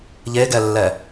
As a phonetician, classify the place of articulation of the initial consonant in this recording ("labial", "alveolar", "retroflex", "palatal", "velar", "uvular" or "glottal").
palatal